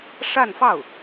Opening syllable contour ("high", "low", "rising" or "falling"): falling